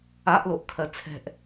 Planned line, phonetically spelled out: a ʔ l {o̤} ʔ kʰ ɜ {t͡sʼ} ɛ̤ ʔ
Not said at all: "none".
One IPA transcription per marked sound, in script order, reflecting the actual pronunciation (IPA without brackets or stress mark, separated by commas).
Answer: o, t͡sʰ